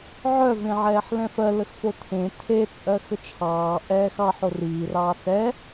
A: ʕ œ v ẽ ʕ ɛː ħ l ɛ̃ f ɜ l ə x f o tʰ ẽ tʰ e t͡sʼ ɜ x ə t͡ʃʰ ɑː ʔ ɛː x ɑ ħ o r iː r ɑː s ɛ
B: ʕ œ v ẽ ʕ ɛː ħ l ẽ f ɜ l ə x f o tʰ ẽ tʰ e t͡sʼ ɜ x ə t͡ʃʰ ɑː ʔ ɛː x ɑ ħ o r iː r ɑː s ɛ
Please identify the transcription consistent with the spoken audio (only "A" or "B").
A